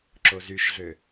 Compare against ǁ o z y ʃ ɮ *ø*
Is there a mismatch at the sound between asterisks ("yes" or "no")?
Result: no